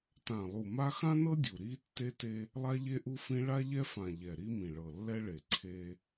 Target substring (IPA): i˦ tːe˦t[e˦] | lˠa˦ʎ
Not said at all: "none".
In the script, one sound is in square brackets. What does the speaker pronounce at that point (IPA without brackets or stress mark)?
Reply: e˦